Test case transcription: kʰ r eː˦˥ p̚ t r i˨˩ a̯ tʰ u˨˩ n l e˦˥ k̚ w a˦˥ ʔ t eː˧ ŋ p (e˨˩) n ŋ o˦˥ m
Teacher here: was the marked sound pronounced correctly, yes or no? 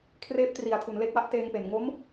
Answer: yes